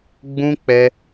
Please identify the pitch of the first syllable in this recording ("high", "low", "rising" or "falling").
high